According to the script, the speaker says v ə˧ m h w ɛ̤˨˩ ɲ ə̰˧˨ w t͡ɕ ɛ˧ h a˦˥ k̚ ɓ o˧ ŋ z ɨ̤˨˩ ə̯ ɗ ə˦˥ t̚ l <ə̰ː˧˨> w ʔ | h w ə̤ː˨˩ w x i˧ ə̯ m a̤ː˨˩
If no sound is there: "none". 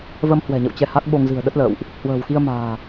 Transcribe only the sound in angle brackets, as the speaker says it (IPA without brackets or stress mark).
ə̰ː˧˨